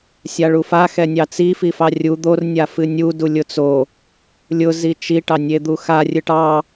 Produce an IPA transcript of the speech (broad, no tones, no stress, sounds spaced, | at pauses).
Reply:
sʲ a ɭ u f a x ɛ nʲ ɑ t͡s i f i f ɑ rʲ u d̪ o r nʲ a f ɨ nʲ u d u lʲ ʊ t͡s o | lʲ ʊ z i t͡ʃ i ʈ ɑ nʲ e d̪ u x a rʲ ɨ ʈ ɑ